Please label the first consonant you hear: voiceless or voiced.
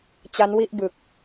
voiceless